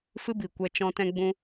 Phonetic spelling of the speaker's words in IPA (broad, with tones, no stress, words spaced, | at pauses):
fɨ˦bi˨ kʷɛ˧t͡ʃɔ̃˧ tɛ̃˧ɡ͡bũ˧